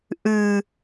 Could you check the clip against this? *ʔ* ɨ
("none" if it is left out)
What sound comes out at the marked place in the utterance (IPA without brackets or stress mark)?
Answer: ʔ